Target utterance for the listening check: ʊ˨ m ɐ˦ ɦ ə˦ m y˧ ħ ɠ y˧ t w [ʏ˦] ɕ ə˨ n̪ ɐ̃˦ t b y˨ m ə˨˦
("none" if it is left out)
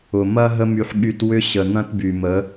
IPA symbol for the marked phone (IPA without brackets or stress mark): ʏ˦